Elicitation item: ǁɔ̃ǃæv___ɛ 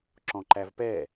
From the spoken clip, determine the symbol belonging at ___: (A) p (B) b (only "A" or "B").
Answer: A